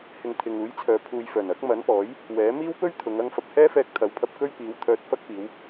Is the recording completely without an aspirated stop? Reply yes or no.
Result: no